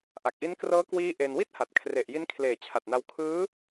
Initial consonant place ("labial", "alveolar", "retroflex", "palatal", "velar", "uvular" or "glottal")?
glottal